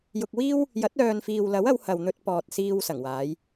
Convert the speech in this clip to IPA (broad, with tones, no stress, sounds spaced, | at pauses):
j ʊ˧ k̚ w iː˥ w | j ɐ˨˥ t̚ œː˨ n f iː˨ w l ɐ˨˥ w ɐ˨˧ w h ɐ˨ w n̪ ɵ˧ t̚ p ɔː˨ t̚ s iː˧ w s ɐ˨˩ ŋ w aː˨˧ j